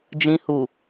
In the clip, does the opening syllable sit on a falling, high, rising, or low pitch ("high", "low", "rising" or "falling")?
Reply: low